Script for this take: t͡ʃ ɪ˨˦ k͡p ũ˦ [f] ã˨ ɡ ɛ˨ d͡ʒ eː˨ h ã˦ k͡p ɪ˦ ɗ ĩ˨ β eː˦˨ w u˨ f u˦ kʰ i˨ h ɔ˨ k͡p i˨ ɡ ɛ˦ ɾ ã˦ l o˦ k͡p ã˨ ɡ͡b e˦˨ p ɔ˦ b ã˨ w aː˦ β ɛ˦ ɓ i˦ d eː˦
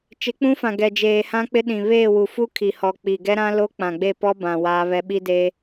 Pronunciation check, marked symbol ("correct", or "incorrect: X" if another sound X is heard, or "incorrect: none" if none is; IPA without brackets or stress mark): correct